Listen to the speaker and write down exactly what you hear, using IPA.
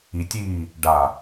i tʲ iː | ɖ a

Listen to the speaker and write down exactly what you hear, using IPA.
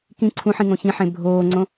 k ĩ ǀʰ ũ ħ ĩ ŋ õ ç ĩ ħ ẽ bʱ oː ŋ͡ǀ õ

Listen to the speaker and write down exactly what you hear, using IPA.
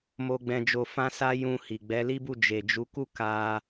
m o˧ ɡ͡b ɛ̃˧ d͡ʒ o˧ f ã˦ s a˦ j ũ˧ h i˨ ɡ͡b ɛ˨˦ l i˦ b u˦˨ d͡ʒ e˨ d͡ʒ u˨˦ k u˦˨ k a˧

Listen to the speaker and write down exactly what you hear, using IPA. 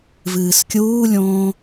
v ɨː s kʲ uː lʲ õː

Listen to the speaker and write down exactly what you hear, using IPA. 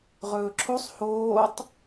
ʁ ɵː ǁʰ o sˤ h oː tˤ

